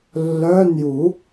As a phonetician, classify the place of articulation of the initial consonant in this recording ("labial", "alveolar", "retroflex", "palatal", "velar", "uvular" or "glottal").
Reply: alveolar